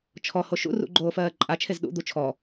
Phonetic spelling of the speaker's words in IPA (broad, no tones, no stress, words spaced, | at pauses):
t͡ʃʰɔho ʃṵ rṵɡ͡ǃoː fɜːǃʼat͡ʃʰez ɗṵd̪u t͡ʃʰɔ